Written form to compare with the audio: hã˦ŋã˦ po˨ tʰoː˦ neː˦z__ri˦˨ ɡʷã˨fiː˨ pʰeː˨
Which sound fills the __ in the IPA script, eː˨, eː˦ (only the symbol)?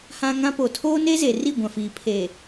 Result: eː˨